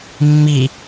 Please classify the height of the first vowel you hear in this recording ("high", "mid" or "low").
high